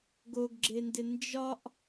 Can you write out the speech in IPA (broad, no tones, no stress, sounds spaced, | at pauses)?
ɡ o ɡ ɡ͡ǁ e n d ɪ n d͡ʒ ɒ ʔ